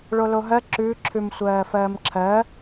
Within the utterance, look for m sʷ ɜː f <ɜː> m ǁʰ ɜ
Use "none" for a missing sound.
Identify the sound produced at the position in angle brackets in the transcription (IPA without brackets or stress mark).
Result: ɜː